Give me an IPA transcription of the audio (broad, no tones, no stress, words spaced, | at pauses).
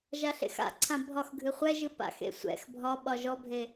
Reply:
ʒaɬḛxa̰ǀʰã bʱɒxɡʱɨ χʷɛʒɨ pa̰xḛ sʷɛ̰x bʱɒɓɒ ʒɔbʱe